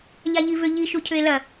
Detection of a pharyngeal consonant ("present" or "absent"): absent